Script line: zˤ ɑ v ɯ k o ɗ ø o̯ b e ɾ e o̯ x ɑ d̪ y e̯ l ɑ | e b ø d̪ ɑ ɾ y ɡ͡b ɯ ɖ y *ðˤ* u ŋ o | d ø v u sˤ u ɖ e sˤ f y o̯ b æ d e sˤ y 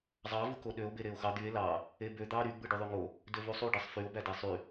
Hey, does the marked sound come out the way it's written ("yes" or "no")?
yes